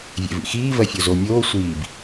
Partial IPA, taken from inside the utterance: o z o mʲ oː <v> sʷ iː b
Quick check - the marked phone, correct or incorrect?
incorrect: none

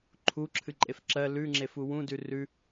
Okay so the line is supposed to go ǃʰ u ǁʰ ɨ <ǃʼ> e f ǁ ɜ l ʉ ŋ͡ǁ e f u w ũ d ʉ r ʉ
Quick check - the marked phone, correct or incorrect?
correct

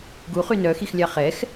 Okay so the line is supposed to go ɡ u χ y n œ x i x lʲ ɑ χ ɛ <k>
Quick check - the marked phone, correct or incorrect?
incorrect: x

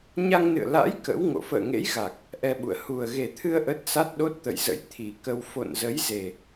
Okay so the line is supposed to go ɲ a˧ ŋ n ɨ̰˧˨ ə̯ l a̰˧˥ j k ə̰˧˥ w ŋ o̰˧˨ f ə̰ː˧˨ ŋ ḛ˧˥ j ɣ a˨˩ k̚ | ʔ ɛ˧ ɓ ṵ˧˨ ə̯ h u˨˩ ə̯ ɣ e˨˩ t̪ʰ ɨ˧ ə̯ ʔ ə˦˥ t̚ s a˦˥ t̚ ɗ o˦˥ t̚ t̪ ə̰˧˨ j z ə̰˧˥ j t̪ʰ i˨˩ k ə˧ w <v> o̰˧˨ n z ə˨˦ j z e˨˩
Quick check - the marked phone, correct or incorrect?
incorrect: f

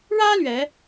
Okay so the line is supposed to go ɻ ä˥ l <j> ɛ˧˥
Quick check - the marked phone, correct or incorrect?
incorrect: ɥ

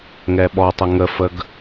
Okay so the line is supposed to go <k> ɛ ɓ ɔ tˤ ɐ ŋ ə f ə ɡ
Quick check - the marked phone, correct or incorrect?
incorrect: ŋ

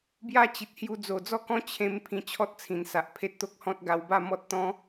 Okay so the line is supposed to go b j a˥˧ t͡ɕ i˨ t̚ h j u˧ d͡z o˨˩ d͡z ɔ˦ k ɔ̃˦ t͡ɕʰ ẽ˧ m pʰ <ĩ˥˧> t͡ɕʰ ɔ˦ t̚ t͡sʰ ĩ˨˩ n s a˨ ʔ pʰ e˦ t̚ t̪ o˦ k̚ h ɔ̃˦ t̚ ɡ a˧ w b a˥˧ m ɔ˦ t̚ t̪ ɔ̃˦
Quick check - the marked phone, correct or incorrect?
incorrect: ĩ˧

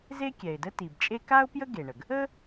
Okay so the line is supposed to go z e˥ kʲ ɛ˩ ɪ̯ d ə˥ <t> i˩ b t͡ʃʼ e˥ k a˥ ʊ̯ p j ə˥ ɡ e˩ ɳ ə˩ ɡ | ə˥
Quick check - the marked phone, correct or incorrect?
correct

